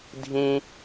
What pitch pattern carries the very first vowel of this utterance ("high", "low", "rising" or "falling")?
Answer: high